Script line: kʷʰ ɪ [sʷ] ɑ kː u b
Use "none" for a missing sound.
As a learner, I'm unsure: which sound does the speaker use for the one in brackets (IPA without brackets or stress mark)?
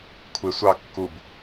sʷ